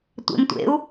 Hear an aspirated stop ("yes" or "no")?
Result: no